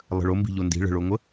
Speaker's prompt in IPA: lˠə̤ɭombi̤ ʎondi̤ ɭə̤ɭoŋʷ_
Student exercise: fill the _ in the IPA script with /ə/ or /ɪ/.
ə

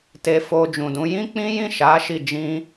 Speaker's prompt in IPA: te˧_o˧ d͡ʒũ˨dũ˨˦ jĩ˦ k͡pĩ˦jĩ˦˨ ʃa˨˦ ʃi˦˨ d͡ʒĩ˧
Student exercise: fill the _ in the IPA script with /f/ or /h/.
f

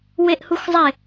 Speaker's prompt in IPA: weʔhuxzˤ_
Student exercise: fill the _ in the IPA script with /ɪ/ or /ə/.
ɪ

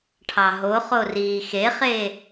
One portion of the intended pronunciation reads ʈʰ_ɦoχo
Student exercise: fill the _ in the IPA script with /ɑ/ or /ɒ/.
ɑ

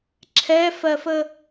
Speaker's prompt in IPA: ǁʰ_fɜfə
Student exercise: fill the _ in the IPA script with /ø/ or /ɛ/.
ɛ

